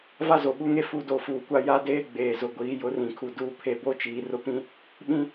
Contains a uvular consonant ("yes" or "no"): no